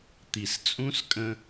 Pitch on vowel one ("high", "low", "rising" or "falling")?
low